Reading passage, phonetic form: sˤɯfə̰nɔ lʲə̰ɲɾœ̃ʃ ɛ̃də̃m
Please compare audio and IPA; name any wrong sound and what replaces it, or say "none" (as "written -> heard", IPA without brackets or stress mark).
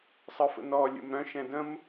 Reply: ɲ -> m